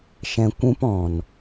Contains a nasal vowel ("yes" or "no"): yes